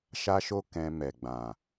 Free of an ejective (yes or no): yes